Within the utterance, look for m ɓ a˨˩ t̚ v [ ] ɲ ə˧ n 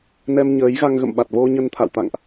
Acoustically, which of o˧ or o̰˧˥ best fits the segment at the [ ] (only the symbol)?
o˧